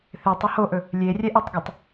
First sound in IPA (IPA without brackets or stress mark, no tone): θ